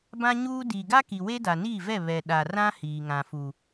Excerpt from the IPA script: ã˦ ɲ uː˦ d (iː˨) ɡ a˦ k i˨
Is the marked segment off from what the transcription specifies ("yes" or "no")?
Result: no